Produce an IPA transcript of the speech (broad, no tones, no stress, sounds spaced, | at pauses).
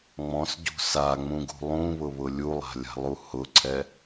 ŋ͡m ɔ̃ s ɟ ṳ s a ŋ͡m ũ ɡ ṳ lˠ ũ β ʊ β ʊ lʲ u lˠ a̤ lʲ a̤ lˠ u h ʊ ǀʰ ɛ